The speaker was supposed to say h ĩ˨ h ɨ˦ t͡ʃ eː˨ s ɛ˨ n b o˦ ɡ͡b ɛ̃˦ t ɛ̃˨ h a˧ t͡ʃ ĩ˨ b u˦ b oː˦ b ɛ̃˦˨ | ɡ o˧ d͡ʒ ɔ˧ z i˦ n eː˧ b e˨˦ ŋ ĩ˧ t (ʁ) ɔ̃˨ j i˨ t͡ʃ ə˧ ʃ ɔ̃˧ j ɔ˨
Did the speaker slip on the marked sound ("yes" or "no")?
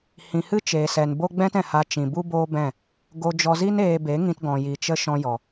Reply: yes